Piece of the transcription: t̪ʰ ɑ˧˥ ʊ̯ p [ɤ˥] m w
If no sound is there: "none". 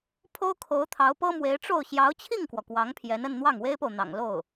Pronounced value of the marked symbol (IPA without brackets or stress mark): ɤ˥